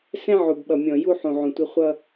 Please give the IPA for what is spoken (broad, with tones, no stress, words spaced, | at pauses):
sɛ̃˦ʕu˨bɓʌ˨mʲɔ̃˨ ju˦ħũ˨ʕũ˨tʷɪ˦ χʷʌ˦